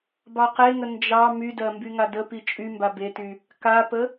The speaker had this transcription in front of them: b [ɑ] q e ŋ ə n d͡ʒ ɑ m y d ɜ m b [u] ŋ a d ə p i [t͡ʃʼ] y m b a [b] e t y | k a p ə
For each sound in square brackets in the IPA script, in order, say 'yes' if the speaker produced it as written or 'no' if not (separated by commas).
yes, no, yes, yes